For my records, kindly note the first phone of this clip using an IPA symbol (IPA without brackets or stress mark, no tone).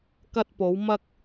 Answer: k